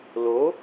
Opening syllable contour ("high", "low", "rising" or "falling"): rising